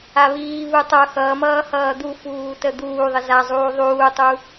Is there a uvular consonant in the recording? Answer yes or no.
no